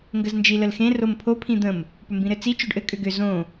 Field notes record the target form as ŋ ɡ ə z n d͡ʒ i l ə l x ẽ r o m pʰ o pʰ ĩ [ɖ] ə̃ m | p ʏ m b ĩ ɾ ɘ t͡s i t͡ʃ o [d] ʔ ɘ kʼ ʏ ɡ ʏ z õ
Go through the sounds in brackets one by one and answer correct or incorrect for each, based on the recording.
incorrect: d̪, incorrect: ɖ

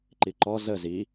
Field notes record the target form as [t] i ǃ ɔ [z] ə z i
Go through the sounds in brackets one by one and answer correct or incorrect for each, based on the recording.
incorrect: ǃ, correct

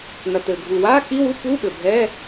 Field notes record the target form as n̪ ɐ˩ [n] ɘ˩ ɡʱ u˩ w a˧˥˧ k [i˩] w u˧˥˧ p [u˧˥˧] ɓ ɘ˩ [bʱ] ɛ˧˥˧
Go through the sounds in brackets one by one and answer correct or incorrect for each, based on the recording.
incorrect: t̪, incorrect: i˧˥˧, correct, correct

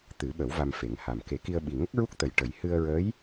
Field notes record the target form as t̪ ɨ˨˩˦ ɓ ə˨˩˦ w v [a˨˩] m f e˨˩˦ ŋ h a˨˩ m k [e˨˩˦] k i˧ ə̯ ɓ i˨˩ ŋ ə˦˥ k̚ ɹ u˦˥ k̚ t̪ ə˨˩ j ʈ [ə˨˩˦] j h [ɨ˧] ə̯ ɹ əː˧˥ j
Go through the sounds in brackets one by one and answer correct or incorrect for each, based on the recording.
incorrect: a˧, correct, correct, correct

